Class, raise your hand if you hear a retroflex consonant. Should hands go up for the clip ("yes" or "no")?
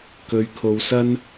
no